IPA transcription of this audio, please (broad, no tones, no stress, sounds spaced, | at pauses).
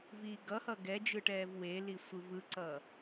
v iː ɡ ʌ h ʌ ɡ ɛ d͡ʒ ɯ ʈ ɛː v w e l i sʷ ɯ v ɯ ǀ ʌː